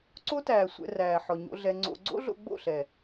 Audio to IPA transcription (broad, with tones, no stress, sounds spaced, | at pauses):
ǀ o˦ t æː˨ sʷ ɛ̰˧ r æː˨ ħ ɔ˨ ɲ o̰˧ ɮ ɛ˧ ŋ͡ǀ o̰˧ ɡ͡ǀ o̰˦ ɮ o̰˧ ɡ͡b o̰˦˨ ɬ ɛ˨